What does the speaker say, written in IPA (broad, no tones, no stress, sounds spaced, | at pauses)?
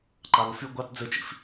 ǃ ɑ ð o f y ɡʷ ɑ t d͡z ɘ t͡ʃ ḭ f